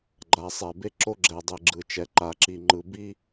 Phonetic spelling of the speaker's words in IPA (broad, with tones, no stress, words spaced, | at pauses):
ɡ͡ǃa˨sˤɛ˨be˦ ǁo˦ɡ͡ǁɛ˨dˤe˨ ɡ͡ǁɯ˨ t͡ʃɛ˨ǃa˨ ǁi˨ŋ͡ǃɯ˨ bi˦